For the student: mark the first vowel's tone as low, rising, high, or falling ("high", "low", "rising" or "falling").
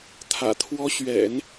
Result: low